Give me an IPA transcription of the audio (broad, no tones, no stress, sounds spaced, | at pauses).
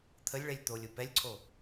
t̪ʰ ə lʲ ɭ ɛ lʲ t̪ o lʲ ʊ p ɛ lʲ ǀʰ o